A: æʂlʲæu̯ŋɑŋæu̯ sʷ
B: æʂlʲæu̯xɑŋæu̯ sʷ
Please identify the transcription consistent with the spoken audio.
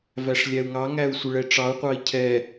A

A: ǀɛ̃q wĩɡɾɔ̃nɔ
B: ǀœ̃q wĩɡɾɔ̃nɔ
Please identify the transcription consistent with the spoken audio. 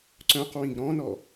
B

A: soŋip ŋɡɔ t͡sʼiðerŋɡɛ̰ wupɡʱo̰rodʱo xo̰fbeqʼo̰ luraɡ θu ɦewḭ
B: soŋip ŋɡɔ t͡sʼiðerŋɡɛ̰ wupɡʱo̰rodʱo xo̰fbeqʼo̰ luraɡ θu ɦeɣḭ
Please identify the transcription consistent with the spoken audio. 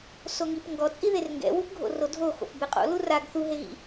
B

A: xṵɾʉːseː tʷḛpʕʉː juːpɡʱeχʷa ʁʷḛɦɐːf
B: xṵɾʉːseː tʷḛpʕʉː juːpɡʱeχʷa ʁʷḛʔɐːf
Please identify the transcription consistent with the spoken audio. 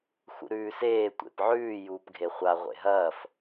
A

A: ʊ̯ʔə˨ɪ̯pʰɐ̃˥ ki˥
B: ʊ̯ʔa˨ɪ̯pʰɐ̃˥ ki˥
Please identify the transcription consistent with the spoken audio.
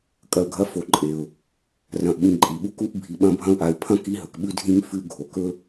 B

